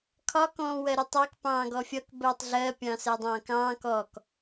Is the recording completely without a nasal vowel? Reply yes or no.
no